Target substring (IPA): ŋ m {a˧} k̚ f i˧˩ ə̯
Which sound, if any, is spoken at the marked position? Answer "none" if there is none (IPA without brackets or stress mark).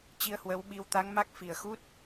a˦˥